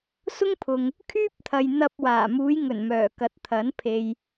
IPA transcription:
s ʊ˥ ŋ pʰ ʊ˨ ŋ | kʰ yː˥ p̚ t̪ʰ ɐ˨ j n̪ ɐ˧ p̚ w aː˨˩ m uː˨˧ j ŋ ɵ˨˩ n m œː˨˩ k ɐ˨˥ t̚ t̪ʰ ɐ˨˥ n pʰ e˨ j

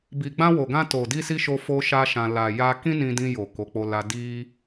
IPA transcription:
b i˨ ɡ͡b ã˧ w o˨ ɡ ã˧ t o˨ d i˧ s i˧ ʃ o˦ f o˦ ʃ a˦ ʃ ã˧ l a˨ j a˧ k ĩ˦ n ĩ˧ d ĩ˧ j o˨ k o˨˦ k͡p o˧ l a˧ d i˧

